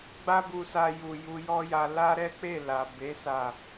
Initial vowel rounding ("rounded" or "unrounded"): unrounded